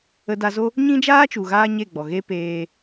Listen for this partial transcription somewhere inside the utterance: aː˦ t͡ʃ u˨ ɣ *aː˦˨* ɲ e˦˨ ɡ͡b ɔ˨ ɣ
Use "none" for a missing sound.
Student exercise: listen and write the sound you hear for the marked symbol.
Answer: aː˦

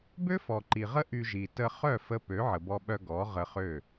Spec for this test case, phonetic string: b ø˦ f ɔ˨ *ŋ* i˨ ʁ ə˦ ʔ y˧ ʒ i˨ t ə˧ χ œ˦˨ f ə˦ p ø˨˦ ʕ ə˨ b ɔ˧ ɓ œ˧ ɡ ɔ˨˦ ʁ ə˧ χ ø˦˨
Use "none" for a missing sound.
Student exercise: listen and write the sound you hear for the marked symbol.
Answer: ǃ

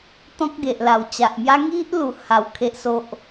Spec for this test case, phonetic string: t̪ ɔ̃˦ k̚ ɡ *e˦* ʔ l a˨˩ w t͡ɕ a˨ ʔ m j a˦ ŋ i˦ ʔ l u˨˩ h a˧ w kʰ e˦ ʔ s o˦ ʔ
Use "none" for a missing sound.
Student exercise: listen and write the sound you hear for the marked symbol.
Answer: e˨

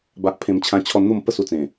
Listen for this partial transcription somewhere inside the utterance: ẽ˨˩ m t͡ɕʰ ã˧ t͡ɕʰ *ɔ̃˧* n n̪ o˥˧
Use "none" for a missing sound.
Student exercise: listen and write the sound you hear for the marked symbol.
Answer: ɔ˧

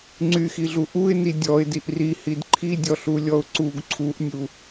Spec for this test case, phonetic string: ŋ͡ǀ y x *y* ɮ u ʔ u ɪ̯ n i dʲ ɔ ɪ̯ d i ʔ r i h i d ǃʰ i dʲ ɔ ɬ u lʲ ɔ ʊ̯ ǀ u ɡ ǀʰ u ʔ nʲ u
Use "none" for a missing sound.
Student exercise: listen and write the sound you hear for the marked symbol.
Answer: i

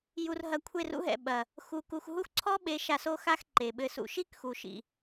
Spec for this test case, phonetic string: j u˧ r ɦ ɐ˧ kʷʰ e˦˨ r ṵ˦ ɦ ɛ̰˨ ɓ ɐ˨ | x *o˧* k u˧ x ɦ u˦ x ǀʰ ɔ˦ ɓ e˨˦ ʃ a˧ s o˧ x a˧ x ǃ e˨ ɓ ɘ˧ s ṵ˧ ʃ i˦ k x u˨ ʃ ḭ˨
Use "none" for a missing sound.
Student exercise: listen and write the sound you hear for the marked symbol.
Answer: u˧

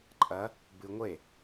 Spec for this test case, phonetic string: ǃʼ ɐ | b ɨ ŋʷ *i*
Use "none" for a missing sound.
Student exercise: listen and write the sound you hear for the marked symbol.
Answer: e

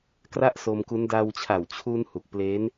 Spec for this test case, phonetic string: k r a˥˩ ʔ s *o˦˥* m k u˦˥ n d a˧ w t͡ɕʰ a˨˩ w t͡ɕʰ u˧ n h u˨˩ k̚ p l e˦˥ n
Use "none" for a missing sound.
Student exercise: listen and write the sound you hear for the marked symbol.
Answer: o˧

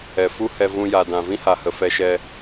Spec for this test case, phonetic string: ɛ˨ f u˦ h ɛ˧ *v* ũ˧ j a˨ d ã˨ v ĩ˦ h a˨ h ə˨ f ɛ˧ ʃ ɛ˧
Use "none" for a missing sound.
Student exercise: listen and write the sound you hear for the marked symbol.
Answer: v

